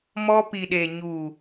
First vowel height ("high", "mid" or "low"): mid